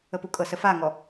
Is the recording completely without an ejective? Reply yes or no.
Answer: no